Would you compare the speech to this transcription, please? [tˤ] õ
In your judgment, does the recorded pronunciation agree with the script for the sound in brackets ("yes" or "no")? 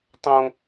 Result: yes